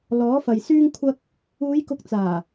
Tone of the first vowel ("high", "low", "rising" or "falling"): rising